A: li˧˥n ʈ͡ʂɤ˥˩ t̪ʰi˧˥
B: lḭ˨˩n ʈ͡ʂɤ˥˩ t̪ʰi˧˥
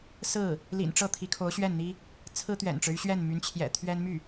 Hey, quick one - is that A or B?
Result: B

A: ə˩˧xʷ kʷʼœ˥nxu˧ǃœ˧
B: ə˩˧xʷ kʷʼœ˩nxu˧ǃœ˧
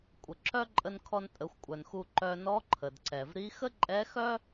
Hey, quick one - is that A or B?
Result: B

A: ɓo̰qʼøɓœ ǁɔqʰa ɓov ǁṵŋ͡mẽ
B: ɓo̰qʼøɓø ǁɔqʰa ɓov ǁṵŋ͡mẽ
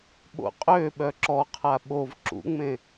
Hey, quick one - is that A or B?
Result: A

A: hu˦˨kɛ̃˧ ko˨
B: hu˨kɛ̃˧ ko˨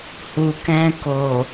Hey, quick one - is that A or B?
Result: B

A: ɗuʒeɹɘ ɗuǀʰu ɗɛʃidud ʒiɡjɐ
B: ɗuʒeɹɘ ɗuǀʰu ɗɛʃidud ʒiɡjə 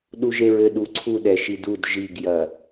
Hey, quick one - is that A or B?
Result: A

